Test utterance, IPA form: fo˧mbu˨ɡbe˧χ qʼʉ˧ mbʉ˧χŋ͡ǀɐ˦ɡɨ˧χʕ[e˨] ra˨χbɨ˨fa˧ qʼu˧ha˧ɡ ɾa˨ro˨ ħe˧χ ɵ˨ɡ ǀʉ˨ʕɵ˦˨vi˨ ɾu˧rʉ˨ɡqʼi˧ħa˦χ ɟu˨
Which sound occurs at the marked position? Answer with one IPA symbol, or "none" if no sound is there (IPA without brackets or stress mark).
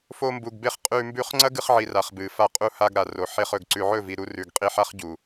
i˨